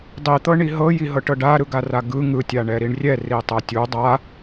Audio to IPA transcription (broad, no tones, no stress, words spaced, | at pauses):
dˤit̪ɤ ɳiɦɤji ɦɤʈɤɖaɾɯɡ araɡɯ ŋɯtʲa ɳɛɾiɳrʲɛ ritˤɤtʲu dˤa